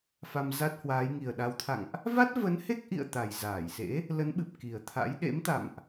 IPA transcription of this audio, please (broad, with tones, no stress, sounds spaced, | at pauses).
f a˧ m z a˦˥ t̚ h w aː˨˦ j ŋ i˨˩ ə̯ ɗ a˨˦ w t̪ʰ a̰˧˨ ŋ ʔ | v a˦˥ t̚ v ə˨˦ n h e˦˥ k̚ ʔ ḭ˧˨ ə̯ t̪ a˨˩ j z aː˧˩ j s ḛ˧˥ | l ə˨˦ n ɓ ɨ˨˩ p̚ k i˨˩ ə̯ t̪ʰ a̰˧˥ j ɗ ḛ˧˥ m t̪ a̰˧˨ m ʔ